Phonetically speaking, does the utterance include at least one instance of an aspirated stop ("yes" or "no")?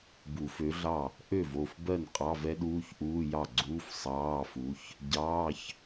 no